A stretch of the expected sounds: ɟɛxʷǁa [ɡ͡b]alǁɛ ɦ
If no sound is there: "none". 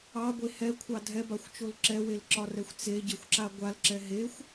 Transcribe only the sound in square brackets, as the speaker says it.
ɡʷ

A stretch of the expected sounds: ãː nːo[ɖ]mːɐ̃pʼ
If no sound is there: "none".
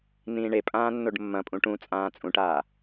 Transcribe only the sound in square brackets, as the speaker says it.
ɖ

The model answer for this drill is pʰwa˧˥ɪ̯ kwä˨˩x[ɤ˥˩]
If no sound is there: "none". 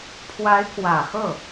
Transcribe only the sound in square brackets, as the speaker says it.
ɤ˥˩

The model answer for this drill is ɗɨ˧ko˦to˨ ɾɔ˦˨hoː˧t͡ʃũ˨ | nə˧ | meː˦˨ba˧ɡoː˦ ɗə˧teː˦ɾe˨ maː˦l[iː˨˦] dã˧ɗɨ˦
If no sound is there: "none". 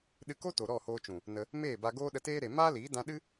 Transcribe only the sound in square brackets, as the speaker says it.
iː˨˦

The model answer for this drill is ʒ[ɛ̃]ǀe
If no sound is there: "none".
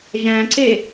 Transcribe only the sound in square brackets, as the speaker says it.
æ̃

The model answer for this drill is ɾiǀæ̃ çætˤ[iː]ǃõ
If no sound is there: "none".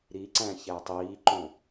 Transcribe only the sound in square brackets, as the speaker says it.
iː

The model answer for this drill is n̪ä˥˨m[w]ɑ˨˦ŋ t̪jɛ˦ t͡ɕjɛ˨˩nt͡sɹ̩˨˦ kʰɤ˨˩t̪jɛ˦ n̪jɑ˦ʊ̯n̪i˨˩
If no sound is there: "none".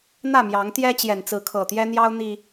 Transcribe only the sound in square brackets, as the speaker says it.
j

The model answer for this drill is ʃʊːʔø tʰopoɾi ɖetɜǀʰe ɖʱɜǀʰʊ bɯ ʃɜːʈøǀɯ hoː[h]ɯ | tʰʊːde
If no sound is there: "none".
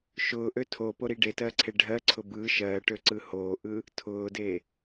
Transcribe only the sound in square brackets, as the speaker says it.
ʔ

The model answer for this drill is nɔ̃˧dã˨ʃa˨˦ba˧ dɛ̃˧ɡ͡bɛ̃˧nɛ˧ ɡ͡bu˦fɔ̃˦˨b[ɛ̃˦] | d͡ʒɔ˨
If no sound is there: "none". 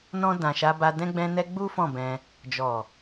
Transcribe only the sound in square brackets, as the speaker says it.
ɛ̃˧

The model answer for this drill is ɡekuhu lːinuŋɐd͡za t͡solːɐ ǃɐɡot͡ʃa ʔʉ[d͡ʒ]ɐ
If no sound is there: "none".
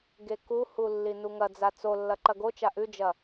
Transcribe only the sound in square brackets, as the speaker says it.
d͡ʒ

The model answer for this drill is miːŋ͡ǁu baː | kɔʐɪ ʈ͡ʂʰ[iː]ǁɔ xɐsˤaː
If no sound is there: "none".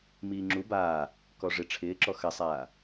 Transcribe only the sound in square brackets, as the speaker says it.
ɪː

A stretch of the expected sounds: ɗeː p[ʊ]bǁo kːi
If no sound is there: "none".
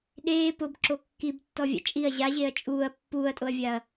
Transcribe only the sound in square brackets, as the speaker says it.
ʊ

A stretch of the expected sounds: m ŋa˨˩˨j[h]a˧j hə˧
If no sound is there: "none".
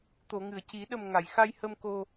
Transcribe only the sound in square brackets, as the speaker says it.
x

